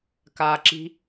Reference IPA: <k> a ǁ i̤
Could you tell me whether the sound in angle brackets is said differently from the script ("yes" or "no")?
no